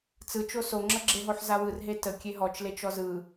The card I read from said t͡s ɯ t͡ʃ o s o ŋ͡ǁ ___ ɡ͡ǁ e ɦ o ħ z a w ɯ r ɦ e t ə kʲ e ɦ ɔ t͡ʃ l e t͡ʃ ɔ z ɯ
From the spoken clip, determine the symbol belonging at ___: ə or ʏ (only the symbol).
ə